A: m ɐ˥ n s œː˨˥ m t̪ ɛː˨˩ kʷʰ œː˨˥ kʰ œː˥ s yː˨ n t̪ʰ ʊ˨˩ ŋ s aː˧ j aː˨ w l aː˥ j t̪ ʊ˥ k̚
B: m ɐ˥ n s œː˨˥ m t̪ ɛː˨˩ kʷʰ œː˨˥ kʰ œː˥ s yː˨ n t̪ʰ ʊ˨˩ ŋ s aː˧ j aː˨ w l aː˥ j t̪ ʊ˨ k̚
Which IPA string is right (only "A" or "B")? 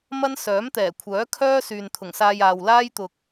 B